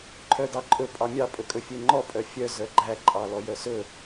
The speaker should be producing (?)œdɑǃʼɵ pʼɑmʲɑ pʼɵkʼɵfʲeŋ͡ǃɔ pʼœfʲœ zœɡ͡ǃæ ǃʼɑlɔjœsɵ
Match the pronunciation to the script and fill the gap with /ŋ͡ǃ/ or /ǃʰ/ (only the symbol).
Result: ǃʰ